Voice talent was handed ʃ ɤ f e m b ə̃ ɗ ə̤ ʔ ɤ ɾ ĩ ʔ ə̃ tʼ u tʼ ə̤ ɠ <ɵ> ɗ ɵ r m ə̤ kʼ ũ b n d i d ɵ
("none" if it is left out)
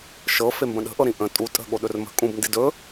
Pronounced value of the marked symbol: o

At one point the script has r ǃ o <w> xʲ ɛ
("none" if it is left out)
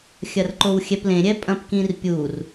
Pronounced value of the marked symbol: w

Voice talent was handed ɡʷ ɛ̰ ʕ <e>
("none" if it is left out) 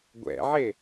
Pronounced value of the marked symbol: e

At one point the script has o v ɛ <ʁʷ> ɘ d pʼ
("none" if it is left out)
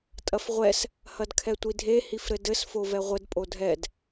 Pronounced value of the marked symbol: ʁʷ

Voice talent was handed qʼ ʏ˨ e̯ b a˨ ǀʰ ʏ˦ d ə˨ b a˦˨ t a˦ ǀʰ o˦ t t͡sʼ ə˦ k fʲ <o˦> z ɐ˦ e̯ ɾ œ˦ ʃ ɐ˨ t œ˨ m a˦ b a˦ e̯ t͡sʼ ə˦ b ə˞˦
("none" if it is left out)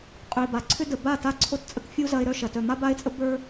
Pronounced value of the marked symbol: u˦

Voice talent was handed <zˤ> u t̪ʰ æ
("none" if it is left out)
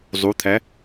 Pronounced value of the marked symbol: zˤ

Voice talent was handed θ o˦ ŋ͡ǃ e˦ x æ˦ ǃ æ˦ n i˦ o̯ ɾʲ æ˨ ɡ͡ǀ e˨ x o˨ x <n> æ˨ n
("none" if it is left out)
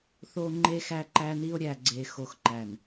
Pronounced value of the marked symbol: ǃ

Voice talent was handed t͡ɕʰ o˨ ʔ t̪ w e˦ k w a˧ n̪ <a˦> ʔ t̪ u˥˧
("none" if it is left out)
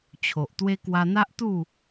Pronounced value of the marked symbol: a˦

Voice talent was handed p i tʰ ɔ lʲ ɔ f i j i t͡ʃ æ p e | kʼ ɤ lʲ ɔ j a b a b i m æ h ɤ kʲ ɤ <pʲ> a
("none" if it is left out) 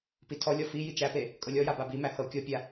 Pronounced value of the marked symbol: pʲ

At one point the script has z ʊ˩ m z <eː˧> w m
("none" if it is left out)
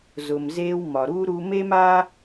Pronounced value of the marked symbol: eː˧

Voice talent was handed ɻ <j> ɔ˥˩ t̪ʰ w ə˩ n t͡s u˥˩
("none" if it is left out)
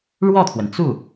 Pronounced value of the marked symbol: w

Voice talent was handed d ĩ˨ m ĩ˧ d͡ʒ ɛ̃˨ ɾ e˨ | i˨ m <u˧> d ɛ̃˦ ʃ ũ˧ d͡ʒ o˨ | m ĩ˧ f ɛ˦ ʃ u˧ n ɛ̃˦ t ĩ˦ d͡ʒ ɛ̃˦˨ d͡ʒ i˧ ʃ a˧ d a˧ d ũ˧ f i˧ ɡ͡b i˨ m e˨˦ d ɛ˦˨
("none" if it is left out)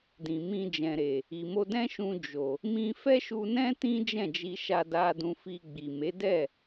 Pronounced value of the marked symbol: o˧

